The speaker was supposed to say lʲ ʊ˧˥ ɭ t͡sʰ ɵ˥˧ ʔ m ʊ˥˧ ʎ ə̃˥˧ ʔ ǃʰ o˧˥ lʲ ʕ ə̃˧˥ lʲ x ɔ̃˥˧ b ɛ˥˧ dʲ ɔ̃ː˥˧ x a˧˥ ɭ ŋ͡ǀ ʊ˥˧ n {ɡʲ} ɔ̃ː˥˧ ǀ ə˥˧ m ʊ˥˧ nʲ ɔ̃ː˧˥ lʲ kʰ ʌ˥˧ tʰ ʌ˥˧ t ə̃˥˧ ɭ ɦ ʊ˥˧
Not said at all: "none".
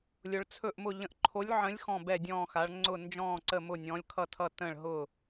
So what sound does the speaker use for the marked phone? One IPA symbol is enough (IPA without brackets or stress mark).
d͡ʒ